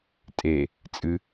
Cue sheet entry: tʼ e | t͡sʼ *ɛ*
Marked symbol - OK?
no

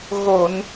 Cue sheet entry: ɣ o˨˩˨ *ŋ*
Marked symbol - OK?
no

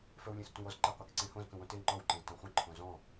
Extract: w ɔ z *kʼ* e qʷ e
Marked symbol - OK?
no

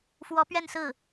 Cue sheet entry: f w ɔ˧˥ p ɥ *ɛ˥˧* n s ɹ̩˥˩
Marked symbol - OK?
yes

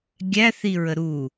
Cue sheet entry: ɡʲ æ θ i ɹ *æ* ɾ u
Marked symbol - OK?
no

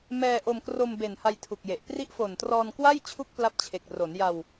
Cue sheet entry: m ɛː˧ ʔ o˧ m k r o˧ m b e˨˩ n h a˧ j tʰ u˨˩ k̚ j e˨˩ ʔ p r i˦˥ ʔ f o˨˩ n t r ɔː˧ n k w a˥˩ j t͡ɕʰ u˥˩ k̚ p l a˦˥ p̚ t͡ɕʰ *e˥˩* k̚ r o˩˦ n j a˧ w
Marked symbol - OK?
no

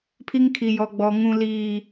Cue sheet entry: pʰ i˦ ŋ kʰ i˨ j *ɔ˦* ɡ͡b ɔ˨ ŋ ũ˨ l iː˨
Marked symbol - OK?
no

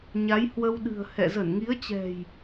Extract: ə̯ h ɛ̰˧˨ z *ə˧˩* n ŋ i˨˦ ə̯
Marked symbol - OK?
yes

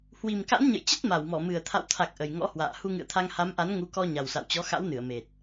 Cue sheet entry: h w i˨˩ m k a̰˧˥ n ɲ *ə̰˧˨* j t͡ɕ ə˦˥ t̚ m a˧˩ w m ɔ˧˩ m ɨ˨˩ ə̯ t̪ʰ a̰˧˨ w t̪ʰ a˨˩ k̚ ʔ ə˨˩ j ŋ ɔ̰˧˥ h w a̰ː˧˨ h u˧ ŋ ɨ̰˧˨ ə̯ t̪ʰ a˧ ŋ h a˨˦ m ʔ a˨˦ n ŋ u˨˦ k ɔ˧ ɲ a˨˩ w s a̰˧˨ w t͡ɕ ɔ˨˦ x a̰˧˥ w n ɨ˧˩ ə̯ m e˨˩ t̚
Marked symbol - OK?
yes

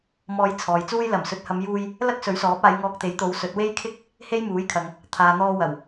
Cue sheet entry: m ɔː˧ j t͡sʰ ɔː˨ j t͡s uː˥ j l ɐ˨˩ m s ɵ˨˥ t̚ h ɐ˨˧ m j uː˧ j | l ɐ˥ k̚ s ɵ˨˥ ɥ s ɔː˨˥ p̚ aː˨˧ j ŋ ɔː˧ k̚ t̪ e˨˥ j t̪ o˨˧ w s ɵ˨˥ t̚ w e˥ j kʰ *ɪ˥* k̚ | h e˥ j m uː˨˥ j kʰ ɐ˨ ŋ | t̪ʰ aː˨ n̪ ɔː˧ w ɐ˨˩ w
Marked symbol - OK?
yes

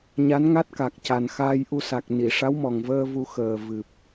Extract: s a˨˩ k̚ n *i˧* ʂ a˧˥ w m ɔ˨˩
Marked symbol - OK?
no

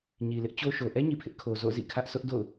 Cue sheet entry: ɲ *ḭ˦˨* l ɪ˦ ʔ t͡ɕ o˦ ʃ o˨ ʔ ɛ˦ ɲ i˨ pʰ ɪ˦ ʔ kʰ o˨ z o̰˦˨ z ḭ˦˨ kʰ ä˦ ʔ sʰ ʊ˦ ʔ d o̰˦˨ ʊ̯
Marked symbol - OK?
no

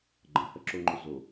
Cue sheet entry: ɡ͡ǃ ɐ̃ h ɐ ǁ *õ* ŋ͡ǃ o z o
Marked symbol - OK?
no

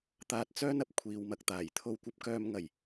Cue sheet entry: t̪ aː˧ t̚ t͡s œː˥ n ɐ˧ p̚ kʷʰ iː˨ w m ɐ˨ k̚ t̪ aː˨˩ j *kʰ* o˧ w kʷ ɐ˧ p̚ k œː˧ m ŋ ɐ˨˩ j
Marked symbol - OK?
no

